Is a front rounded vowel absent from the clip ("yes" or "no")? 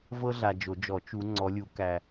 yes